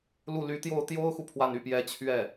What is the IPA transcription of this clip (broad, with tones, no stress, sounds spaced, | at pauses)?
l u˥˩ l y˧˥ t̪ j o˥˩ ʊ̯ t̪ j o˥ ʊ̯ x u˨ pʰ w a˥˧ n y˥˩ p j ɛ˥ t͡ɕʰ ɥ ɛ˥˩